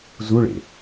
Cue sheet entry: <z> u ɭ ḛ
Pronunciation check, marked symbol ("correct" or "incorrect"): correct